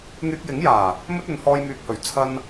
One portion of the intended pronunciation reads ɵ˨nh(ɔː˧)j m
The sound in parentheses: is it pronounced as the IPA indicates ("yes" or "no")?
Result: yes